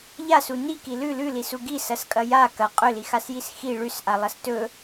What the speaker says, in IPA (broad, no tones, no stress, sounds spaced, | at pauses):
ʎ a s u n i k i l ʉ l ʉ l i s u ɡ i s ɐ s kʼ ɐ j a k ɐ qʼ ɵ l i x a s j i s x i ɭ ʉ s ʔ a lˠ ɐ s t ɵ